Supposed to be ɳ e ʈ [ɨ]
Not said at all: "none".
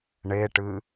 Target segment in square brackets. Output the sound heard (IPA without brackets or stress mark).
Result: ɨ